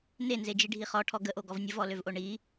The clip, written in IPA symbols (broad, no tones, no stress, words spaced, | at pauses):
nenzed͡ʒiɖʱi χɔʈʰɔ ɡəʔoɡɔv nʲəvɔløvʔo ɳi